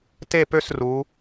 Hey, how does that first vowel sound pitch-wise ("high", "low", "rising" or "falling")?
falling